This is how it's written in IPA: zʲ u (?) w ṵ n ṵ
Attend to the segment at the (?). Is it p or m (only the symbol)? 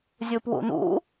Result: p